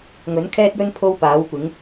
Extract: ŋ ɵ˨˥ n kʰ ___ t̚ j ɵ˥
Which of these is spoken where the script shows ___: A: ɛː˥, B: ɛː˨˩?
A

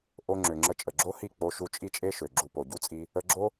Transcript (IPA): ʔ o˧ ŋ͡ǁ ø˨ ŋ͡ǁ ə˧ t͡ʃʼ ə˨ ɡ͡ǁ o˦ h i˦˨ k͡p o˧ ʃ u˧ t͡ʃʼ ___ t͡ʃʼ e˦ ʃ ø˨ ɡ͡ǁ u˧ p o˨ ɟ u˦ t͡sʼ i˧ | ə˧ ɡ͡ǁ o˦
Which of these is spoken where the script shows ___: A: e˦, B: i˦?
B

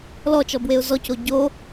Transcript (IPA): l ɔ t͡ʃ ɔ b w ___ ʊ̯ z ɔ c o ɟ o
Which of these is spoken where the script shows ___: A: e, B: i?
A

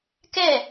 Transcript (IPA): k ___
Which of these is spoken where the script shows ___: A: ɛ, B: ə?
A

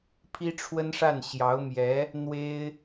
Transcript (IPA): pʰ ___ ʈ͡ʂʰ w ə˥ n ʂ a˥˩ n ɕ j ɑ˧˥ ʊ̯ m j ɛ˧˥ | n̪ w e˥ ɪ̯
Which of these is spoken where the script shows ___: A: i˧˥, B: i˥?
B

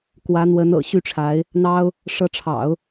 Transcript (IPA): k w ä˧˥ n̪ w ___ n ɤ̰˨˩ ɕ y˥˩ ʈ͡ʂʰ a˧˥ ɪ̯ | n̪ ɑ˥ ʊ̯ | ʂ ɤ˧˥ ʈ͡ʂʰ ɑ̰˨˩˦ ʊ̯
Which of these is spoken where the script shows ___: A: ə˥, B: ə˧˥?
B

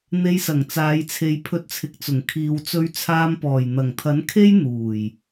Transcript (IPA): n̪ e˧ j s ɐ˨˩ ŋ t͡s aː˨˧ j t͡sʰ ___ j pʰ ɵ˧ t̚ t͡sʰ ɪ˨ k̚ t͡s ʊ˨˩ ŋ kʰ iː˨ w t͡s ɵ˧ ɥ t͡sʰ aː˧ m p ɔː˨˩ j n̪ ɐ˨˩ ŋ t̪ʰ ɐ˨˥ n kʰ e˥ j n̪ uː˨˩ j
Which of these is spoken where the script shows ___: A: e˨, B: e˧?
A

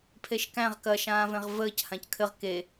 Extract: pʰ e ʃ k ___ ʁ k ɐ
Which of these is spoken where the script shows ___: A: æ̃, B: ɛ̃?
A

